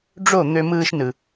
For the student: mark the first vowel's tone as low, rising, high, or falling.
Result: falling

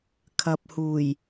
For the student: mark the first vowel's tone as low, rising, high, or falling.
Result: low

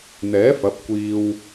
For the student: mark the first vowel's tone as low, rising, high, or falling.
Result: rising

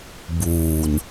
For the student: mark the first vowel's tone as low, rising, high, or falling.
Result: low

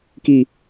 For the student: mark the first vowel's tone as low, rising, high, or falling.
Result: low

